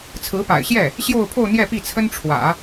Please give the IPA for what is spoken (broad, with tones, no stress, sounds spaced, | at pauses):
t͡sʰ ɹ̩˧˥ p a̰˨˩ ɪ̯ ɕ j ɛ˥˩ | ɕ j o˥˧ ʊ̯ pʰ o˥˧ ʊ̯ n̪ j ɛ˥˧ p i˥˩ t͡sʰ ə˥ n ʈ͡ʂʰ w ä̰˨˩˦